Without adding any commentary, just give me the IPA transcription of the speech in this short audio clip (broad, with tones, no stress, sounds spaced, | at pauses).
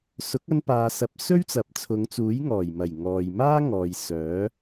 s ʊ˨˥ k̚ ɐ˧ n p aː˨ s ɐ˨˥ p̚ s ɵ˥ ɥ t͡s ɐ˨ p̚ t͡sʰ ʊ˨˧ ŋ t͡s uː˨˥ j ŋ ɔː˨˩ j m ɐ˨˩ j ŋ ɔː˨ j m aː˥ ŋ ɔː˨ j s œː˨˥